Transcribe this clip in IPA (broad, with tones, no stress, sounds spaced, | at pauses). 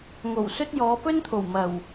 ŋ o˨˩ w s ɵ˥ t̚ j ɔː˨˧ p ɵ˥ n t̪ʰ o˨˩ w m ɐ˨˩ w